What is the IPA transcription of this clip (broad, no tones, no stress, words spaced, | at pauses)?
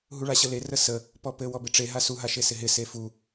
ɦuɭaɕəle rəsə | pɔpɘ wɔbɪʈ͡ʂe ɦasu ɦaʃesɪɦɪ sefu